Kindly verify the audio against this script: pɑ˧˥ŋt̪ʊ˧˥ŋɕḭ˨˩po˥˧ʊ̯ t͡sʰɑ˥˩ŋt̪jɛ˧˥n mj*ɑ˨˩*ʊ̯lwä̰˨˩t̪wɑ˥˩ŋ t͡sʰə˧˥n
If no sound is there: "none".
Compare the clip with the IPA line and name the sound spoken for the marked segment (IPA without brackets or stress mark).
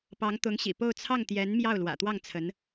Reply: ɑ˥˩